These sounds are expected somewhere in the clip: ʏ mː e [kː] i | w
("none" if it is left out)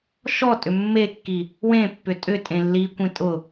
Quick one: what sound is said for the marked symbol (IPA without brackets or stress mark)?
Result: kː